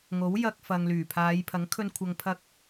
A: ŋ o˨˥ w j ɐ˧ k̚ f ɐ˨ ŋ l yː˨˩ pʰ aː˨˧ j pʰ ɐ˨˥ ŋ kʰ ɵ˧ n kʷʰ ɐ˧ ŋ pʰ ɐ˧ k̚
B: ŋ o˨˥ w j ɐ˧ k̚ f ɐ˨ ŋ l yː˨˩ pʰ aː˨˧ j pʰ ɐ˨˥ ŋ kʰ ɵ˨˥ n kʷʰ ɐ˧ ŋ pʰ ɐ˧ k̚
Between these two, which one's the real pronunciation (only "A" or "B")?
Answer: A